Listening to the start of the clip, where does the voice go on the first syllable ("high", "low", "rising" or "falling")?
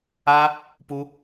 high